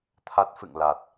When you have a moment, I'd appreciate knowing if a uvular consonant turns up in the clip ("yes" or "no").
no